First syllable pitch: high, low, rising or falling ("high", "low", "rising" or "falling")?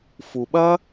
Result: low